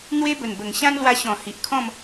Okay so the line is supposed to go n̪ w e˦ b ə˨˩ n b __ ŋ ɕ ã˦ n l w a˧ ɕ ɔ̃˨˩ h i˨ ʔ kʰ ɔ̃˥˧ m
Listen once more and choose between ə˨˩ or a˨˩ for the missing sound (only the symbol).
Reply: ə˨˩